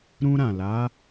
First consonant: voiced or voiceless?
voiced